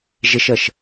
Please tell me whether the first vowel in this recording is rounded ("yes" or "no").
no